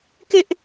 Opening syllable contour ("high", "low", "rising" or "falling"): high